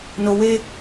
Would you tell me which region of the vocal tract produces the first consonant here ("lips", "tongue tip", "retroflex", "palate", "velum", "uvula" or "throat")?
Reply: tongue tip